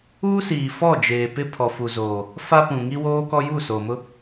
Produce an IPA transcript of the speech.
u˦ s iː˨ f ɔ˦˨ d͡ʒ eː˨ p ɪ˦ pʰ ɔ˨ f u˨ z oː˨ | f a˦ p ũ˨ ŋ i˦ w oː˦ k ɔ˦ j u˦˨ s oː˨ m ʊ˦

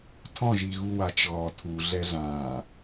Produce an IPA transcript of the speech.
tʰ ɔ̃ ʒ i ɣ u w a t͡ʃ ɣ ɔ tʰ u ɮ ɛ ɮ ã

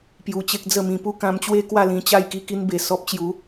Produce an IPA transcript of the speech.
p j u˧ t͡ɕ e˦ k̚ d͡z ə˥˧ m ĩ˧ p u˦ k ã˧ m t͡ɕ w e˦ k w a˥˧ l ĩ˧ t͡ɕ a˥˧ j k i˧ k i˧ n b e˨˩ s ɔ˦ p̚ t͡ɕ j u˨˦

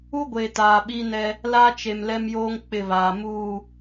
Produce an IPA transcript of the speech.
u˦ ɡʷ e˨ t aː˨ ɓ i˦ n ɛ˦ | l a˦ t͡ʃ e˨ m l ɛ˦ m j oː˦ ŋ k͡p ɪ˦˨ β aː˨ m uː˦˨

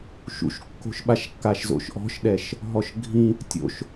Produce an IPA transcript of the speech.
ʃ ṵ ʃ kː o̤ ʃ ɓ a ʃ kː a ʃ z o̰ ʃ ʔ ɔ̤ ʃ ɗ ɛ ʃ | ɦ ɔ ʃ ɡʱ ĩ | tʲ o̰ ʃ

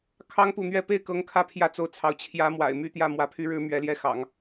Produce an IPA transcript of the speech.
kʰ ɑ˥ ŋ p u˥˧ n̪ ɥ ɛ˥˧ p e˥˩ ɪ̯ k ɤ˧˥ ŋ kʰ ä˧˥ pʰ j ä˥˧ t͡s o˥˩ ʊ̯ t͡sʰ ɑ˧˥ ʊ̯ t͡ɕʰ j ä˧˥ m w a̰˨˩ ɪ̯ m y˥ t̪ j ä˥˩ m w ä˧˥ pʰ y˧˥ ɻ ɻ̩˧˥ m ɥ ɛ˧˥ l j ɛ˥˩ x ɑ̰˨˩˦ ŋ

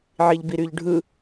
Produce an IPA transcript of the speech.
ʕ i ʎ b i ɾ y ʎ ɖʱ ɯ

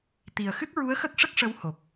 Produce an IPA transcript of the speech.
t̪ i˨˩ ə̯ x ɨ˦˥ k̚ ɹ u˧˥ ə̯ x ə˦˥ k̚ ʂ ə˦˥ k̚ ʂ ə˧˥ w h o˨˩ k̚

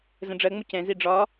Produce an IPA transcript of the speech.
z ə̃ ɖ͡ʐ ɜ ŋ͡m ʊ c ɛ̃ z i ɖ͡ʐ ɒ

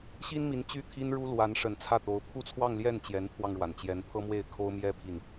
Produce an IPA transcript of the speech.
ɕ i˥ n m i˧˥ n t͡ɕ y˥˩ t̪ʰ i˥ n ɻ u˥ l w a˧˥ n ʂ ə˨˩ n t͡sʰ ä˥˩ t̪ o˧˥ ʊ̯ pʰ u˥˧ t͡sʰ w ɑ˥˧ ŋ l j ɛ˥˩ n t͡ɕ j ɛ˧˥ n pʰ w ɑ˧ ŋ ɻ w a˩ n t͡ɕ j ɛ˧˥ n pʰ ɤ˥ m w e˥˩ ɪ̯ kʰ o˥ ʊ̯ m j ɛ˥ pʰ i˥˩ n

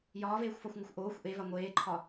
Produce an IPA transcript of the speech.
j ɒː v eː xʷ f ɒ xʷ ŋ ɐ xʷ ʔ oː xʷ ʔ e v a ŋʷ eː ǃʰ ɒ

